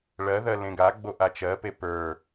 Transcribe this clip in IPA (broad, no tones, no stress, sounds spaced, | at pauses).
ɭ ɜ ð ɜ l ẽ ɡ a ɡ͡b o ʔ a t͡ʃ ɜ p e p ə˞